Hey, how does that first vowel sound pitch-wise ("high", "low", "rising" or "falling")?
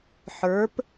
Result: rising